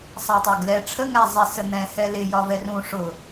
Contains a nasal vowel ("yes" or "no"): yes